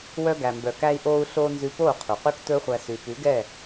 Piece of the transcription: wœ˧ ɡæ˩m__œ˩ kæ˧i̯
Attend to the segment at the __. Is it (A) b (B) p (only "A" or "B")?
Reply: A